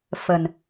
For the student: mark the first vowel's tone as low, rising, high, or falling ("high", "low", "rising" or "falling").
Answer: low